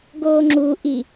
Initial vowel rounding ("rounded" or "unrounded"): rounded